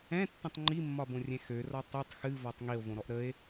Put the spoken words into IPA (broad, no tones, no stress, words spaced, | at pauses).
ɛ̃tːə̃tˤ ŋ͡ǃimːɒbõrʲɛ̃ xørɒ tˤɨtˤ xɨvɒtˤ ŋio̯võɾɔʔ ɾəe̯